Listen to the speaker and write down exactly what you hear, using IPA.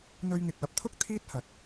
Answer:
n̪ ɵ˧ ɥ ŋ ɪ˨ k̚ w ɐ˨˥ p̚ t̪ʰ ʊ˥ k̚ t̪ʰ iː˥ t̚ h ɐ˨ t̚

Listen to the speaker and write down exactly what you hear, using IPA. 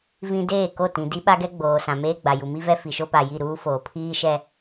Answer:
v ĩ˨ d eː˦˨ k o˦˨ t ĩ˨ d i˦ ɓ a˦ ɡ ɛ˦ ɡ͡b oː˨ s ã˨ m eː˦ ɡ͡b a˨ j u˨ m i˦ v ɛ˦ f i˨ ʃ o˦ p a˨ j i˦˨ ɾ uː˦ f oː˨ pʰ iː˦ ʃ ɛ˦

